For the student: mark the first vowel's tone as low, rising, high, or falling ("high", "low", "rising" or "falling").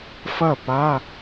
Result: falling